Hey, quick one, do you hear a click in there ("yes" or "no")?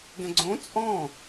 yes